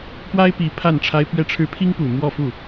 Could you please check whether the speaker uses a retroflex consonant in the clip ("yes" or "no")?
yes